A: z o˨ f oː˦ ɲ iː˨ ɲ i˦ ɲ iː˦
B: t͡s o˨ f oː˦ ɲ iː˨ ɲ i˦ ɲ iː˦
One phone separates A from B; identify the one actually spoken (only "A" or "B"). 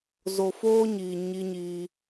A